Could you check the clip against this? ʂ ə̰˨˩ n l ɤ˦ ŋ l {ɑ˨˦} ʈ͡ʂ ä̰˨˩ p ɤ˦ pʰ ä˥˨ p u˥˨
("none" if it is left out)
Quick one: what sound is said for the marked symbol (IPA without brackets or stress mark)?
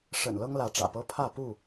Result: ä˨˦